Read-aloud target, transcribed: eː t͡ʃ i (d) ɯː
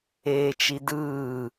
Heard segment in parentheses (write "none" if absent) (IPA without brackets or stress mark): d